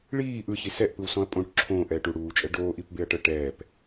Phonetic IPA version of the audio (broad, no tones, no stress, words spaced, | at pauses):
ɭiː ʔɯçi sɛʔpɯwsɔ̃ɐ̯ pʼõʈ ǁʰõːʔɛːʈ uɽuːt͡ʃʼɛ ɖoːʔipbeɐ̯ʈɤ ʈɛːp